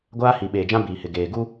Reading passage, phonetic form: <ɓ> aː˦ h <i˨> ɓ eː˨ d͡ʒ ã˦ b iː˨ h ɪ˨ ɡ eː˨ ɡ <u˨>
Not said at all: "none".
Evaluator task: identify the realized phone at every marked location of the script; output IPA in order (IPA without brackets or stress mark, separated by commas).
ɡʷ, i˨, u˦